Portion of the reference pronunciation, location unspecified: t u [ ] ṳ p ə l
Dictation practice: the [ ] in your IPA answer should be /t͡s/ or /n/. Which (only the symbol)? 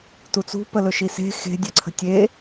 t͡s